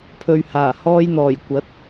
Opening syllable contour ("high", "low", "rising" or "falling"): low